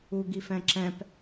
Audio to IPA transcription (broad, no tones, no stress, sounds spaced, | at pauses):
u ɡ i f ɛ̃ ǁ ɛ̃ p